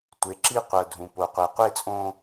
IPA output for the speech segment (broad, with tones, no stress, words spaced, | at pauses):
tʷe˨ǁi˦qʷɤ˨ dʱũ˨po˨ qʷɛ˨qʷe˦˨t͡sʼõ˦